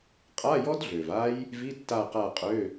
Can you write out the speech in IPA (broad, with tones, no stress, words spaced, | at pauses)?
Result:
qʼa˧˥˧jɔ˦˥dɮø˨˩v a˦˥j | vi˧˥˧tːa˦˨qa˦˨qʼø˧˥˧